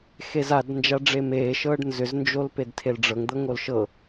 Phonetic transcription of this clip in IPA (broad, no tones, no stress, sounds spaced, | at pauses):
x e z a d n d͡ʒ a ɖ͡ʐ e m eː ʃ ɤː ɖ n z ʏ z n d͡ʒ o l p e d tʰ e l ɖ͡ʐ ɤ ŋ d̪ ɤ ŋ o l ʃ ɤ